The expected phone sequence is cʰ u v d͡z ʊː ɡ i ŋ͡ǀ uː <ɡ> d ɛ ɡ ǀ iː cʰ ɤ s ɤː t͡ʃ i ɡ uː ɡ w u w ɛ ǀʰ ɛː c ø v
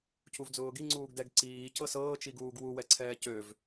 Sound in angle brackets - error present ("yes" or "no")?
no